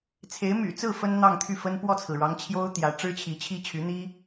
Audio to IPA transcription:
t͡sʰ e˧˥ ɪ̯ m y̰˨˩ t͡s ɹ̩˥˩ f ə˥ n n̪ ɑ˥˧ ŋ t̪ʰ y˥˩ f ə˥ n p w ɔ˥˩ t͡sʰ ɹ̩˩ ɻ ɑ˧˥ ŋ t͡ɕʰ j o˥ ʊ̯ t̪ j ä˧˥ ʈ͡ʂ ɻ̩˥ t͡ɕʰ i˧˥ t͡ɕʰ i˥ t͡ɕʰ y˧˥ n̪ i˥

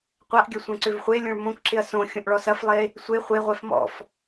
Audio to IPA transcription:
qʷ a ʔ ɡʲ ɐ sʷ ɛ̃ ǀ ʏ v χʷ e lʲ õ ɭ m õ k ǁ ɪ ɐ̯ s õ xʲ õ ʔ ɭ ɔ s ɐ f lˠ e | sʷ e χʷ e ʁʷ ɛ f m ɔ̰ f

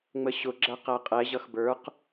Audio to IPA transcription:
ŋ͡m ə ɕ ʊ ɡ͡ǁ æ q æ qʼ ɛ ʑ ʌ x b ə˞ q

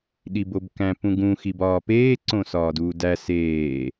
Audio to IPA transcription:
ɗ i b o b k æ̃ p ũ ɡ ũ x i b ɒː p eː ǀ õ s ɒː d uː d æ s eː

